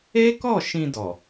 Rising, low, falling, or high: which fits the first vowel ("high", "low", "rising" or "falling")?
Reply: high